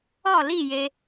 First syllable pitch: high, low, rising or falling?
falling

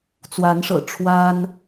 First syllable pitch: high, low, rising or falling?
rising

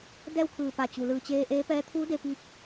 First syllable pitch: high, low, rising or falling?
falling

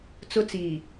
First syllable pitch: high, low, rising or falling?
high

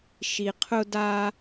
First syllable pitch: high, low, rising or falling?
low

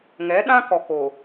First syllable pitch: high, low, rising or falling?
rising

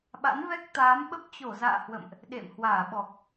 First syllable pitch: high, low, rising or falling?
rising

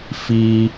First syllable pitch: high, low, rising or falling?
low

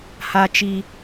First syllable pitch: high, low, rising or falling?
high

